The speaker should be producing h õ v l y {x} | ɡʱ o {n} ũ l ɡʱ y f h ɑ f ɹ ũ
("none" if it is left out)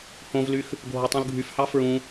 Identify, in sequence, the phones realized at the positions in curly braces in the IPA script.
x, tˤ

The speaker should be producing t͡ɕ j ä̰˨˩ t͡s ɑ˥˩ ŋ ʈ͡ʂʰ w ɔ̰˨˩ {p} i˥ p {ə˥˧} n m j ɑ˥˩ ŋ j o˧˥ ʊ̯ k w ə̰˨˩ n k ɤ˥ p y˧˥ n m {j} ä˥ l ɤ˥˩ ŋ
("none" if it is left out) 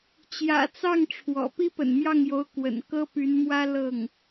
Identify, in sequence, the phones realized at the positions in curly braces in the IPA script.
p, ə̰˨˩, w

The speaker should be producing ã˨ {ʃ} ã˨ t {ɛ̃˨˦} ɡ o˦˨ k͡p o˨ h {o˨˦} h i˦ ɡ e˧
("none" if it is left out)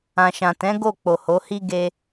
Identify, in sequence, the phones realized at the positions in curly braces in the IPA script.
ʃ, ɛ̃˨˦, o˨˦

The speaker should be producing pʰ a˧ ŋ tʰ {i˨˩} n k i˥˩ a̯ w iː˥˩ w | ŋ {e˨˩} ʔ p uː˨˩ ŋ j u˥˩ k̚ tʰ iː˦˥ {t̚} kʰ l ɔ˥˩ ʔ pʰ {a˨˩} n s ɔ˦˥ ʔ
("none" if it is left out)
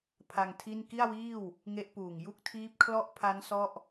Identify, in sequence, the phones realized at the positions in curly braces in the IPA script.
i˥˩, e˦˥, p̚, a˦˥

